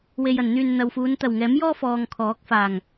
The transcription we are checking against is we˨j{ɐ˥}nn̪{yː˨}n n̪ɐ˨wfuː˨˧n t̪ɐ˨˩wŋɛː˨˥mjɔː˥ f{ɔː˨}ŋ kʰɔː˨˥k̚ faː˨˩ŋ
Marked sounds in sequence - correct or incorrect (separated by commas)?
incorrect, correct, correct